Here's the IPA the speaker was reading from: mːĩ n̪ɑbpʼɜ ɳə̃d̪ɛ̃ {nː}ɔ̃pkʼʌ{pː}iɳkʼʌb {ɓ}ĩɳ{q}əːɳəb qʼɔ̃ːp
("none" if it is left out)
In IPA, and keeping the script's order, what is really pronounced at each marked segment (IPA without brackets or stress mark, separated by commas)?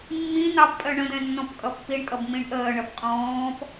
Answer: nː, pː, m, ʔ